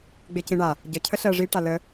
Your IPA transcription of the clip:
ɡ͡b e c ĩ ɳ a | ɟ ə cʰ ə ɬ ɜ ʐ i ʈ a l ə

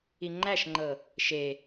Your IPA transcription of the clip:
i ŋ͡ǃ æ ʃ ŋ͡ǃ ɤ | ʃ e

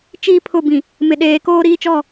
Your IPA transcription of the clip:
t͡ʃ iː˦ pʰ ʊ˦˨ b ĩ˨ | m ɪ˨ ɗ eː˨ k oː˦ ɾ iː˦ t͡ʃ ɔ˦˨

